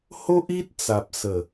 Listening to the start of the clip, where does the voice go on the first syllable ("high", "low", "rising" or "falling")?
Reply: high